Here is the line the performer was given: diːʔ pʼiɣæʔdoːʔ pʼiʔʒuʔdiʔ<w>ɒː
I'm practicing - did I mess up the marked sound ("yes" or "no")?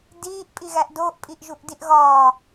yes